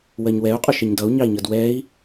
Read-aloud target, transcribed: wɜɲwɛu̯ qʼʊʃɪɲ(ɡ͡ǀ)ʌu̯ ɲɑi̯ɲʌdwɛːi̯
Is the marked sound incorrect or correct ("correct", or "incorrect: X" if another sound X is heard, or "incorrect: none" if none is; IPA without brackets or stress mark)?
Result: incorrect: d